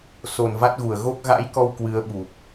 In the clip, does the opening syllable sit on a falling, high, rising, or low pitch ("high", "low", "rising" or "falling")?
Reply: low